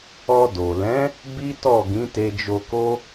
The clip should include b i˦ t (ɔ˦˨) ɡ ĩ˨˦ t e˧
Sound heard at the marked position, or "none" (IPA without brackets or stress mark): ɔ˦˨